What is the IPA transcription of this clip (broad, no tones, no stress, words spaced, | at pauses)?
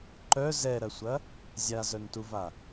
ǃœ zɛɾɐsʷɐ | zʲazœntuva